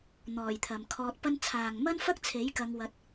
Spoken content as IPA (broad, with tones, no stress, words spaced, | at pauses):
n̪ɔː˨˩j t̪ʰɐ˨mkʰɔː˧t̚pɐ˥n t͡sʰaː˨ŋmɐ˥nfɐ˥k̚t͡sʰe˨˥j kɐ˧ŋwɐ˧t̚